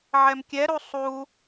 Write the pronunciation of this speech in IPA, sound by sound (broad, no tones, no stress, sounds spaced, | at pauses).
ʕ ɛ m kʲ ɛ ɾ u sˤ u